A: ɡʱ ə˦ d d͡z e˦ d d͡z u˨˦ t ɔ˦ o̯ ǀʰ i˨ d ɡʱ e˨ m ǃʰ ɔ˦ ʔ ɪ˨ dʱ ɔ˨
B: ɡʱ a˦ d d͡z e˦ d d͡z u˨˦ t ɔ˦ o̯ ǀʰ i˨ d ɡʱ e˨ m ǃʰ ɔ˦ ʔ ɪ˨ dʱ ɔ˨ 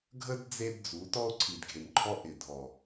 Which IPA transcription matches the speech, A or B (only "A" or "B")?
A